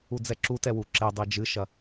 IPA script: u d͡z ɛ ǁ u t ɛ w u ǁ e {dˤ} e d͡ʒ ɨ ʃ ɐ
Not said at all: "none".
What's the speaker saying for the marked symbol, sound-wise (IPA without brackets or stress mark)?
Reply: dˤ